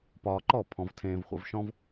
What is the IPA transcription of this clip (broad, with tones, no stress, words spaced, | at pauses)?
pɒː˧ǃɔ˥˩ pʰɔ̃˧vtʰẽː˧vχʷə̰˧v ʃɔ̃˥v